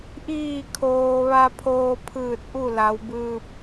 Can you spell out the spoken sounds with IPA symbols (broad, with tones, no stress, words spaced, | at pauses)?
ʔiː˧˩kʰoː˩ ʋa˧pʰoː˧pʰɯː˧˩t̚ ʔu˥˨la˩˧wbɯː˧p̚